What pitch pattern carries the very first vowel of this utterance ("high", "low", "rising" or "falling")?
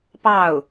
falling